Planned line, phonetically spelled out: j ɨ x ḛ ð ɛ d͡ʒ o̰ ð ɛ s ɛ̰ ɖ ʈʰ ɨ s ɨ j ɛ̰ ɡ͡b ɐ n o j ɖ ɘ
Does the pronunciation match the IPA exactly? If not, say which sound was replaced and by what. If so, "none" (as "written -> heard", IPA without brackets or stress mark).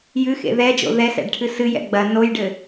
none